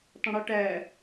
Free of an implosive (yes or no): yes